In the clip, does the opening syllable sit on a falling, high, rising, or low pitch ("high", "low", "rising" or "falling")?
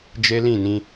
high